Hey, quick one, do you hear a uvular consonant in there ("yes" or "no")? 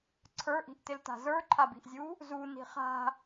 yes